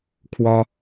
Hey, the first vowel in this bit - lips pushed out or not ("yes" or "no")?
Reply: yes